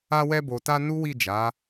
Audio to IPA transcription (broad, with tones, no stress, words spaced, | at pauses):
a˧wɛ˧bo˨ta˧ nu˦wi˦˨d͡ʒa˨˦